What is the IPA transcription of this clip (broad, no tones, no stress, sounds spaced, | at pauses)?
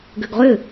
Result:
ɡ ʏ ɡ ʁ ʏ